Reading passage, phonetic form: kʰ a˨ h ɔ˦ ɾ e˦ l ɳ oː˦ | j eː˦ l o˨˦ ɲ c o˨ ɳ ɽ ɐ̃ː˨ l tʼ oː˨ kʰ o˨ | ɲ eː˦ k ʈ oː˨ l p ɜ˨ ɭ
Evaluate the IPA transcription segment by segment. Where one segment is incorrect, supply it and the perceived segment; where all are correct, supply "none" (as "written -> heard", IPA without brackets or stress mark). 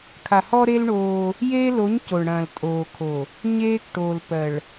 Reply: none